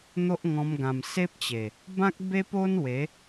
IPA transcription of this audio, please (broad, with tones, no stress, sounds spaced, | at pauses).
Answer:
n̪ o˦ ʔ ŋ ɔ̃˧ m ɡ ã˨˩ m s e˦ p̚ t͡ɕ e˨˩ | b ã˦ k̚ b e˦ p o˦ n w e˨˦